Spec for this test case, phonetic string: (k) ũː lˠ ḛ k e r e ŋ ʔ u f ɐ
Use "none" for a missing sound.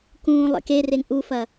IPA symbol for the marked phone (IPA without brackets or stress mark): k